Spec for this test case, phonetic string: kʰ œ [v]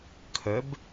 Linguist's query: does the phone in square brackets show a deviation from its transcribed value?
yes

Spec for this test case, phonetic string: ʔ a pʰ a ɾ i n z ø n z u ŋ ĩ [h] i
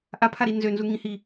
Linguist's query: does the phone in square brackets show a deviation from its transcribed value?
no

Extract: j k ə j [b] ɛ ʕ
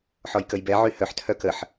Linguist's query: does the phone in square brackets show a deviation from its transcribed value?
no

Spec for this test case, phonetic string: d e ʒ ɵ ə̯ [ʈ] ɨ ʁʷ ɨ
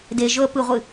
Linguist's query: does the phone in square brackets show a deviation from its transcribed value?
yes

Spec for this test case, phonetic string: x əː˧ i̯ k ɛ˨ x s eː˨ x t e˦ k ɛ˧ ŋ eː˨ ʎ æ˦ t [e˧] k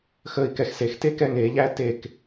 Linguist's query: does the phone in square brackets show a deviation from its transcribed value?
yes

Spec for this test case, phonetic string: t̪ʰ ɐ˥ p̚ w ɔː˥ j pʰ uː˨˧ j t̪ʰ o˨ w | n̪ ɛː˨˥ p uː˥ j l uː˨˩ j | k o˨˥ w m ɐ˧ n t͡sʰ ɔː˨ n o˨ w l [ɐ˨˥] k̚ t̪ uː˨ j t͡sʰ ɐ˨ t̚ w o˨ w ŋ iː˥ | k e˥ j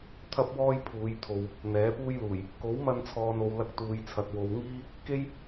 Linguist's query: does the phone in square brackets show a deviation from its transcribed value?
yes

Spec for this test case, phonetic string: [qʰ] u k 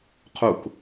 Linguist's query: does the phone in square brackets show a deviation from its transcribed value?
no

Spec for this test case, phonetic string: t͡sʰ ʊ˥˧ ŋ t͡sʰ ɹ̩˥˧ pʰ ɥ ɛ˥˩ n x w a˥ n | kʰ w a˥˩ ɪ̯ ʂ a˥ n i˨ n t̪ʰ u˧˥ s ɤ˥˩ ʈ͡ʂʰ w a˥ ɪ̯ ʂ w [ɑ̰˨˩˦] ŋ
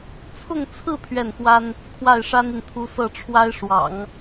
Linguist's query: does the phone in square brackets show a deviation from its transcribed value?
no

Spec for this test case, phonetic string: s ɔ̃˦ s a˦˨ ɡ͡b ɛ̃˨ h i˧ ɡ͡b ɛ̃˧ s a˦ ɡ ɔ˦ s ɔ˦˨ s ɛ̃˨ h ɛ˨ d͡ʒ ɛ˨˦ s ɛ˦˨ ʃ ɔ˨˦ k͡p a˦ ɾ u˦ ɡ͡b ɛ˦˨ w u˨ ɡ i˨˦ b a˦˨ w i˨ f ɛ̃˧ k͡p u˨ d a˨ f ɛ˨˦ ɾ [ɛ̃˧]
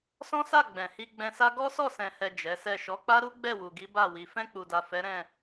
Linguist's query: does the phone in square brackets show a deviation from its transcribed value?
yes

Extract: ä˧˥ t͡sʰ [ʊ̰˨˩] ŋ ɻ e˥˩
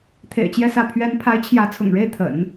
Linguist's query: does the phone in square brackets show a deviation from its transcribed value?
no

